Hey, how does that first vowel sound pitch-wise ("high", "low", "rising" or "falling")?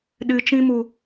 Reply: low